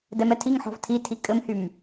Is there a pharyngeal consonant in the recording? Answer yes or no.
yes